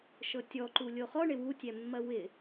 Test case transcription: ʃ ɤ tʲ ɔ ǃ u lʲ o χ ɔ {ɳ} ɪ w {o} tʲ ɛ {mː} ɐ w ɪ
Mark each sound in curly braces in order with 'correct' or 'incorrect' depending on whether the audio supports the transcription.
correct, incorrect, correct

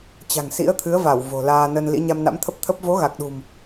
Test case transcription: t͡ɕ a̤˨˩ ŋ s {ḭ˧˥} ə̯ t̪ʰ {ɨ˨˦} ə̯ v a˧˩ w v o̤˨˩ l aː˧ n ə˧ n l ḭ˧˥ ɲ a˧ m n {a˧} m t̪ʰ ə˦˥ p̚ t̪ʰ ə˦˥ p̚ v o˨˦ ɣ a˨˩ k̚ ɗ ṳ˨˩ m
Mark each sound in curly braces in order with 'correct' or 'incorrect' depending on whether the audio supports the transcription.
correct, correct, incorrect

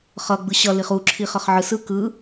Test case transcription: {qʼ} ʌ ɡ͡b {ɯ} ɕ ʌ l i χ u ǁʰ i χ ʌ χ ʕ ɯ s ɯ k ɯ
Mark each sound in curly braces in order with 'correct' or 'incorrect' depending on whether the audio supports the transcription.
incorrect, correct

